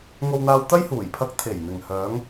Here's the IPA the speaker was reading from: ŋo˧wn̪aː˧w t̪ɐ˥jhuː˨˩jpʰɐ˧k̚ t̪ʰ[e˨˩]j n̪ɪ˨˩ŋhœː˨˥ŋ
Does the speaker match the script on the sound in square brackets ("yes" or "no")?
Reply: yes